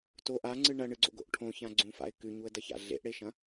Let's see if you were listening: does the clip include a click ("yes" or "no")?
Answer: yes